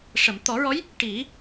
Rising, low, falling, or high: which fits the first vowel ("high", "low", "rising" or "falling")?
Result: low